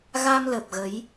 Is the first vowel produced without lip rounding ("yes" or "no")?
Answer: yes